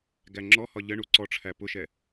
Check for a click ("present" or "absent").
present